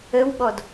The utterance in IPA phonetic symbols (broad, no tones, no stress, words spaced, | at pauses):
əwɓɔd